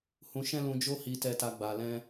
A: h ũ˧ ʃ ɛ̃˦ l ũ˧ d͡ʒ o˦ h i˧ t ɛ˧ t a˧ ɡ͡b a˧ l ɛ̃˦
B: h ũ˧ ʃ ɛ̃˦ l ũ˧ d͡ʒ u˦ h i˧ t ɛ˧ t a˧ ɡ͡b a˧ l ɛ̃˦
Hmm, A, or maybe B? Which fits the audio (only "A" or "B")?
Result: A